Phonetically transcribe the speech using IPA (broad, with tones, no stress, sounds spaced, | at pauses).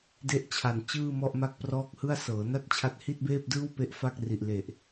d e˥˩ ʔ t͡ɕʰ a˨˩ n t͡ɕ ɯː˥˩ m ɔ˥˩ ʔ m a˥˩ k̚ p r ɔː˥˩ k̚ h ɯ˥˩ a̯ s ɤː˩˦ n a˥˩ t̚ t͡ɕʰ a˦˥ t̚ h i˥˩ t̚ b eː˥˩ p̚ d ɯː˥˩ w p e˥˩ ʔ f a˥˩ k̚ r i˨˩ ʔ l e˨˩ ʔ